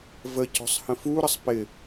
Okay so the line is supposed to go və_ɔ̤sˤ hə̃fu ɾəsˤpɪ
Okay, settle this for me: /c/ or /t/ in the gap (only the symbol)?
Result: c